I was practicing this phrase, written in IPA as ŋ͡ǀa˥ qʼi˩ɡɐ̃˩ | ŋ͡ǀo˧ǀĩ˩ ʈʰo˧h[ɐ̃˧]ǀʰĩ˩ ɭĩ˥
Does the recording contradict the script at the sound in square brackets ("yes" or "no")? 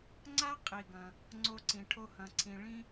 yes